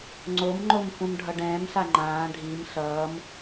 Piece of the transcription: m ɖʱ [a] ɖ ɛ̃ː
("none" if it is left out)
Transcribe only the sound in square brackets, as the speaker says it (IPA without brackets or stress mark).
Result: ʌ